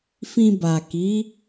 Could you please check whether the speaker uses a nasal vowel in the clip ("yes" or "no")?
yes